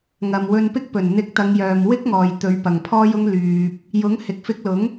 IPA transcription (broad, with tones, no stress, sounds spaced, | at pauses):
ŋ ɐ˨ m w ɵ˧ n p ɪ˥ k̚ p ɵ˨˩ n n̪ ɪ˧ k̚ t̪ ɐ˨˧ ŋ j œː˨ m w ɪ˥ k̚ ŋ ɔː˨ j t̪ ɵ˨˧ ɥ p ɐ˨ ŋ pʰ ɔː˥ j ʊ˥ ŋ l yː˧ p̚ | j ʊ˨˥ ŋ h ɪ˨ k̚ f ɪ˧ k̚ l ʊ˨˥ ŋ